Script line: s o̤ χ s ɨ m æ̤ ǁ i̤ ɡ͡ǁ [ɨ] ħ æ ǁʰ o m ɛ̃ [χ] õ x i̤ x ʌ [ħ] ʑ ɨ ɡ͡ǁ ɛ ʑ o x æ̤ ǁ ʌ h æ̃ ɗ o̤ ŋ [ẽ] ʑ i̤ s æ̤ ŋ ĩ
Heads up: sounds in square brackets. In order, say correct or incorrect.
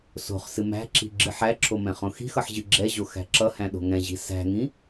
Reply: correct, correct, correct, incorrect: ɛ̃

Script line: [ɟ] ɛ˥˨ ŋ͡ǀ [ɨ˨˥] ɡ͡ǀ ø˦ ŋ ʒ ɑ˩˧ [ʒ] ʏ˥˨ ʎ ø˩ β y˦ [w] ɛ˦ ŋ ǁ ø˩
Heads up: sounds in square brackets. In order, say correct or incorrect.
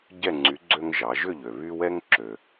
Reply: correct, incorrect: y˨˥, correct, correct

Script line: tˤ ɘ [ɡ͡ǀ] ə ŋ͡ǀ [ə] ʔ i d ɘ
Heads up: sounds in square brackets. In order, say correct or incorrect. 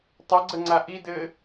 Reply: correct, incorrect: a

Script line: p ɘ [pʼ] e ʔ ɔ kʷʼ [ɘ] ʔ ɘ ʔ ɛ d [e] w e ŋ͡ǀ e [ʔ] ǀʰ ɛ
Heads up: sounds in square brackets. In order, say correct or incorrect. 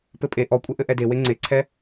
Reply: correct, incorrect: e, correct, incorrect: none

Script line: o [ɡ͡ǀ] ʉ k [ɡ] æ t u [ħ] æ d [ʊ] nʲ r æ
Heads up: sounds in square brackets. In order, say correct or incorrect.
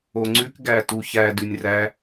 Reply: incorrect: ŋ͡ǀ, correct, incorrect: ç, incorrect: ʉ

